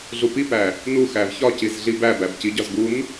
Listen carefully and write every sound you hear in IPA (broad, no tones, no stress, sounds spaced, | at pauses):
ɮ u p i p æ | n u x æ v ç ɒ c i z ɮ i b æ b æ b c i ɟ ɒ z ɡ u n